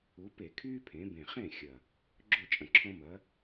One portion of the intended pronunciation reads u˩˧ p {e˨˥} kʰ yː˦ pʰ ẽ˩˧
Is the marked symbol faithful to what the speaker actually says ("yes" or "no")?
no